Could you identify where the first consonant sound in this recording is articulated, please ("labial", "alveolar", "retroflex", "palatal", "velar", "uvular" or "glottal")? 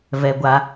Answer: labial